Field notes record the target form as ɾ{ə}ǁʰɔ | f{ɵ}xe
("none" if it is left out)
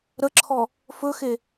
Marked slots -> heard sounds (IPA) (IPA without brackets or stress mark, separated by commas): ə, ɵ